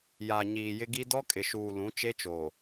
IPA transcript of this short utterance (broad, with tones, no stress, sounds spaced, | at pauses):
j a˨ ɲ iː˨ j ɪ˦ ɡ i˦ d ɔ˦ kʼ ɪ˨ ʃ uː˨ l ũ˨˦ t͡ʃ e˦ t͡ʃ oː˨